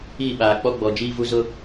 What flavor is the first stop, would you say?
implosive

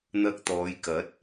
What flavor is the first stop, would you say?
plain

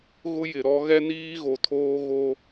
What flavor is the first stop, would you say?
aspirated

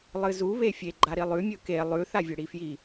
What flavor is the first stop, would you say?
click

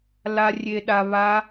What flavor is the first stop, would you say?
implosive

